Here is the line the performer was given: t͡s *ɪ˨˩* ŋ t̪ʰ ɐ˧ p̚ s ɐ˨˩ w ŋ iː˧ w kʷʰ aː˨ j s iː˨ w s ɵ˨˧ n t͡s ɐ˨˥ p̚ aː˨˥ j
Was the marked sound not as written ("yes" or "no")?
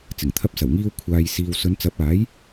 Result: no